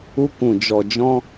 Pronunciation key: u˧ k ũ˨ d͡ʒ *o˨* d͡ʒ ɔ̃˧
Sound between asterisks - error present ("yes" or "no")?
yes